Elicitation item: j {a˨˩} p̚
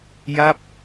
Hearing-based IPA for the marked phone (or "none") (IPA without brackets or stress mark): a˥˩